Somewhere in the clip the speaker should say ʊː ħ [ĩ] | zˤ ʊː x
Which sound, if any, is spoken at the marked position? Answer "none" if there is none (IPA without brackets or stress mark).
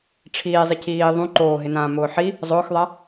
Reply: i